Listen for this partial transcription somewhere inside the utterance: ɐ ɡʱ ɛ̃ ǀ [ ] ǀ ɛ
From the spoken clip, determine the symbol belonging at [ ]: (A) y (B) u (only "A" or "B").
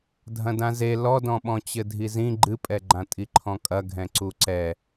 B